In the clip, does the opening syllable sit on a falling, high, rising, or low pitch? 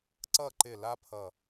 falling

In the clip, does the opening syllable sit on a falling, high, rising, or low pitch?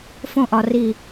high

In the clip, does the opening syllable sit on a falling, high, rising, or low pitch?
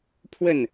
falling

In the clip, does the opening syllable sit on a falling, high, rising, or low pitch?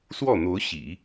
falling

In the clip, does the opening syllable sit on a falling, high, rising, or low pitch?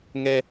high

